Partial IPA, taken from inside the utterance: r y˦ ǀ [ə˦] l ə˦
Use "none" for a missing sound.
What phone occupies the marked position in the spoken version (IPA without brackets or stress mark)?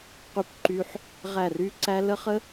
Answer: æ˦